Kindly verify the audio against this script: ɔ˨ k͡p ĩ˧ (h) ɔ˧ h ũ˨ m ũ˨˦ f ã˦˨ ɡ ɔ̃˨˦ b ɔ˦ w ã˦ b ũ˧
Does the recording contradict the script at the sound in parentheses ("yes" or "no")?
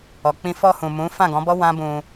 yes